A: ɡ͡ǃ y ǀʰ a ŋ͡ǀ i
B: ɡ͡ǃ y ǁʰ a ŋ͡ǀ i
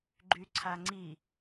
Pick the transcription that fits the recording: A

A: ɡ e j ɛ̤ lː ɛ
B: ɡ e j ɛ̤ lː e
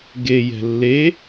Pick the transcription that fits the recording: B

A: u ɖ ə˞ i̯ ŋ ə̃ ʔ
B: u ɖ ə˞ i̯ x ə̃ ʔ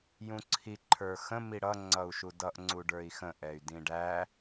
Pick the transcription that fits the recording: B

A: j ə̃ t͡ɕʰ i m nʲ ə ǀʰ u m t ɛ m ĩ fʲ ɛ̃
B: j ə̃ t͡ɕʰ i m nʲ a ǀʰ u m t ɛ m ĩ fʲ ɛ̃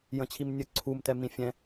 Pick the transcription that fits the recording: A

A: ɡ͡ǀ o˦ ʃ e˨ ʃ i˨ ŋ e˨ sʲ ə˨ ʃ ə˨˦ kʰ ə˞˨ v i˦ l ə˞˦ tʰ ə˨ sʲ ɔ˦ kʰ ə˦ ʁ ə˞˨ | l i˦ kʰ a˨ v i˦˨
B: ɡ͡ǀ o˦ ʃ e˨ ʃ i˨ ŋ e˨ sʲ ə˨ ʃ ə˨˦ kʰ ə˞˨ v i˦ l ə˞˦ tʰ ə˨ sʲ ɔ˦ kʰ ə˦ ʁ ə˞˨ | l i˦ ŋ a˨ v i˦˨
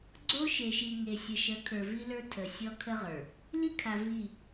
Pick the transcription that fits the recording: A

